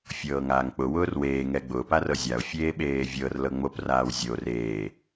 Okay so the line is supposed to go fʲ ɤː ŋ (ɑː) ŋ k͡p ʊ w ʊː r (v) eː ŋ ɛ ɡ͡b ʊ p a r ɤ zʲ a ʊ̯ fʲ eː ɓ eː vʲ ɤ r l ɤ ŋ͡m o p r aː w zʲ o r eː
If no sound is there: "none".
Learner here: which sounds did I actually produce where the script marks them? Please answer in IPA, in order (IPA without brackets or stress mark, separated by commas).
aː, w